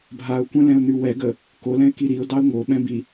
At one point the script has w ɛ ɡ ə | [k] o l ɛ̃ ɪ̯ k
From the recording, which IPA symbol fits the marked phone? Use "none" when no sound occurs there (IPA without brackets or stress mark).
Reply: k